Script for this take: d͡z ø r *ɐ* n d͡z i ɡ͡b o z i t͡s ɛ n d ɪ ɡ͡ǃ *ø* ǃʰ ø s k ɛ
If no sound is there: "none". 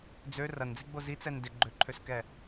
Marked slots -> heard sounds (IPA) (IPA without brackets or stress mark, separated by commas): ɐ, ø